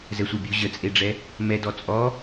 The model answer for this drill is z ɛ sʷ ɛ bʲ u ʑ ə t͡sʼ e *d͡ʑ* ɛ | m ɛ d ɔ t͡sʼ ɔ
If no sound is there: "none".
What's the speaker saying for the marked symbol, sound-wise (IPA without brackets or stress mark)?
ɖ͡ʐ